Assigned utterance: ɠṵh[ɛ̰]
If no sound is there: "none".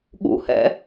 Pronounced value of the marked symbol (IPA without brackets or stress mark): ɛ̰